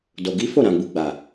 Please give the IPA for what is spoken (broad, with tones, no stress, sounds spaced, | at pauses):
d o˨ ɡ i˨˦ f o˦˨ ɾ ã˨ ɡ͡b u˨ ɡ͡b a˨